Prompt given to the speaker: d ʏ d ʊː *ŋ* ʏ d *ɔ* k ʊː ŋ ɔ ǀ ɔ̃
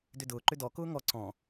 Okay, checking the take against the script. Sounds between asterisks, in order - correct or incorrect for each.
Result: incorrect: ǃ, correct

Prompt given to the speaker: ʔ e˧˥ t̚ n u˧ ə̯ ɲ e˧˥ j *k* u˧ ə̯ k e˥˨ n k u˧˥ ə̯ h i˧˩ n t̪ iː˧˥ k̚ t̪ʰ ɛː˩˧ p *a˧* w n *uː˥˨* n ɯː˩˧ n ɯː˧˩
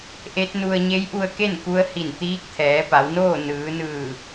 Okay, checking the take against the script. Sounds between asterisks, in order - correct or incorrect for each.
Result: incorrect: ʔ, incorrect: a˩˧, incorrect: oː˥˨

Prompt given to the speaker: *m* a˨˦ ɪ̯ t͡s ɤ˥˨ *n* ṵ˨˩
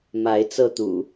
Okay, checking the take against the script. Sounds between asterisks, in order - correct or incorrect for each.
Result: correct, incorrect: t̪

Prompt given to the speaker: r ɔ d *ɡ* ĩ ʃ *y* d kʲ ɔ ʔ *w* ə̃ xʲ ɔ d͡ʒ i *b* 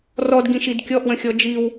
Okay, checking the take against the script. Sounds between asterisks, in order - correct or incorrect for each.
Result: correct, incorrect: i, correct, incorrect: w

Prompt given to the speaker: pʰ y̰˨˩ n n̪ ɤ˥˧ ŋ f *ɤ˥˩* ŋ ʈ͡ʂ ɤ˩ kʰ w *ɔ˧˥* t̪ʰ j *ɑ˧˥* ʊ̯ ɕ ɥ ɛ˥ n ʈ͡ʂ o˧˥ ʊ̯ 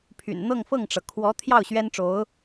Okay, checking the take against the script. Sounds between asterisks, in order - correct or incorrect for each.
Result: correct, correct, incorrect: ɑ˥˩

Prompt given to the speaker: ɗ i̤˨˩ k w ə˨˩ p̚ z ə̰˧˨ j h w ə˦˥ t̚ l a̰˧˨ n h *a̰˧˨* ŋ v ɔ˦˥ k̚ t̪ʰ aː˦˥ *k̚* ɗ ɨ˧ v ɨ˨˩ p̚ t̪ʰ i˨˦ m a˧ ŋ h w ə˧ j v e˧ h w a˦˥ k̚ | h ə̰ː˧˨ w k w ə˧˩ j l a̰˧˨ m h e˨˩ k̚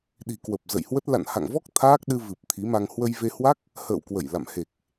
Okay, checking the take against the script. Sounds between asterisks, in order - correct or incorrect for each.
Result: correct, correct

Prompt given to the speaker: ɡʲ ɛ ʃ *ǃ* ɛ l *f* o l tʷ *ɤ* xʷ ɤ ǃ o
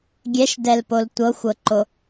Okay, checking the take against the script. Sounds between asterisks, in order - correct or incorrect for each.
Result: incorrect: d, incorrect: p, correct

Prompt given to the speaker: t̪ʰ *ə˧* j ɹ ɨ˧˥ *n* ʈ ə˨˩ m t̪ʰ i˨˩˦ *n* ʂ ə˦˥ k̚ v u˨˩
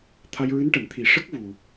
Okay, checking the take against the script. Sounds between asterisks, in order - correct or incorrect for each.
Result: incorrect: a˧, correct, incorrect: none

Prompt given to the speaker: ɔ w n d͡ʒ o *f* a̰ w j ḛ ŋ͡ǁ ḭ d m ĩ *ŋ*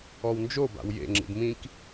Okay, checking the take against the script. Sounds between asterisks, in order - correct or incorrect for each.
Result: incorrect: b, incorrect: k

